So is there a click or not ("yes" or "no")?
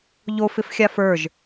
no